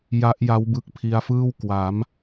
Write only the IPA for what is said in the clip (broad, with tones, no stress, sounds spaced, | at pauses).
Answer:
j a˦˥ ʔ j a˦˥ w b ɯ˦˥ k̚ pʰ i˧ a̯ f ɯː˥˩ w k w a˩˦ m